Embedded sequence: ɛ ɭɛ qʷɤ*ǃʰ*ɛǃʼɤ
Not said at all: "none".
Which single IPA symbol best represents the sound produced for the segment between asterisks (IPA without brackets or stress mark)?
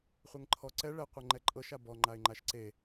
ŋ͡ǃ